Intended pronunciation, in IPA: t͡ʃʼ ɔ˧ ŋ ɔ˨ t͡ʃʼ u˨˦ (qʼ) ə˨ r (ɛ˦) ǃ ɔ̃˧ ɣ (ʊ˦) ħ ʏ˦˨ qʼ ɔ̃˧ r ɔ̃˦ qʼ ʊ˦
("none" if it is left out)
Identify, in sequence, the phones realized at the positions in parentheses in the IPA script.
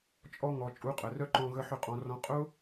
qʼ, œ˦, ə˦

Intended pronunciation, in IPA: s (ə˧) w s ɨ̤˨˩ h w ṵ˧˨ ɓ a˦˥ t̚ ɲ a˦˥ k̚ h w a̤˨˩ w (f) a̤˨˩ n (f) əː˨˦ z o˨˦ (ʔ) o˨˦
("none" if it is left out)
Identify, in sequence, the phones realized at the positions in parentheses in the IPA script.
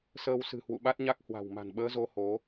əː˧, m, ɓ, h

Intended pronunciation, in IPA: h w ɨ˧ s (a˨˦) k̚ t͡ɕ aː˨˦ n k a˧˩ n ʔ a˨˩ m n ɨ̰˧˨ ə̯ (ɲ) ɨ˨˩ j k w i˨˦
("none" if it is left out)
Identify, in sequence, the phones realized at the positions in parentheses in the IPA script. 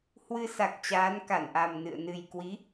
a˨˩, n

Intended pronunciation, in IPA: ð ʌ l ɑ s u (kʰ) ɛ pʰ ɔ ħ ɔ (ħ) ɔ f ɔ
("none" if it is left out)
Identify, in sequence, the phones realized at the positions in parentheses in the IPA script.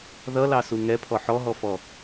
ŋ, ɦ

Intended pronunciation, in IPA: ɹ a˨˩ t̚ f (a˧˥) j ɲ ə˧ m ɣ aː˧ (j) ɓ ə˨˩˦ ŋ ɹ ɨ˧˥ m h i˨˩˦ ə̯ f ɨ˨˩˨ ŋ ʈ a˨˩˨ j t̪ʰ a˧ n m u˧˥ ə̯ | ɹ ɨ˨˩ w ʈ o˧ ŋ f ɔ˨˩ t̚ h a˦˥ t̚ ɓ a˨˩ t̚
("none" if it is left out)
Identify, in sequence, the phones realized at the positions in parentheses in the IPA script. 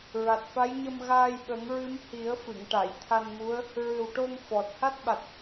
a˧˥, j

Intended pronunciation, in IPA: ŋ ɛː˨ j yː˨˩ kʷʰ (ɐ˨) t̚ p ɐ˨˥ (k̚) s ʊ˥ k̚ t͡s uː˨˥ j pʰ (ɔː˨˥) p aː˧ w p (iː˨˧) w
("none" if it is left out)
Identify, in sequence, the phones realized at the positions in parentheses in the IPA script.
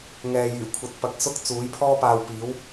ɐ˨, k̚, ɔː˥, iː˨˥

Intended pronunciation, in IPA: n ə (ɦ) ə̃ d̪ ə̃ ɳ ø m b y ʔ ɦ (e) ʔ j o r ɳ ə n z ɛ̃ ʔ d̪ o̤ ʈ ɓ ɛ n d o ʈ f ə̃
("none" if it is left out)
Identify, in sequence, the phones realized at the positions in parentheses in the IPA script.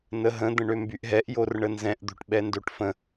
ɦ, ɛ

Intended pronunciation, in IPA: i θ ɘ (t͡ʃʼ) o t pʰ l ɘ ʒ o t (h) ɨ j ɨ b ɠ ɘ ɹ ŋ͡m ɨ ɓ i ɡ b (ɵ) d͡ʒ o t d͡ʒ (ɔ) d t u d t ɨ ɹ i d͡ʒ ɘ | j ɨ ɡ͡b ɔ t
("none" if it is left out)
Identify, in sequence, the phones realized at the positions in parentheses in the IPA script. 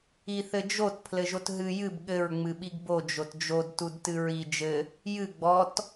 d͡ʒ, ɦ, o, o

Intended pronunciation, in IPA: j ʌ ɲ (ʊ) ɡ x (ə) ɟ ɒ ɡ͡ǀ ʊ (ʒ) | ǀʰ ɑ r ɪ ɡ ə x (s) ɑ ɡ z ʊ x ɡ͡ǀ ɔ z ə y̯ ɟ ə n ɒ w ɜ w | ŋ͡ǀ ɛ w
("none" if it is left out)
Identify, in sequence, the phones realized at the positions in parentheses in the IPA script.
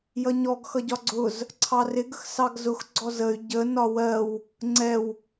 ɔ, ʌ, z, s

